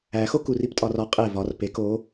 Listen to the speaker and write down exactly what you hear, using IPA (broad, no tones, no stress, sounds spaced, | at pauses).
æ x o k u r i p tʼ ɒ r ɒ qʼ e v ɒ r p e k o